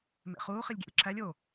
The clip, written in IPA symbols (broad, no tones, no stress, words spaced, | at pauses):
mḛχuː χilʲɡʲæ̰lʲǁʰælʲ o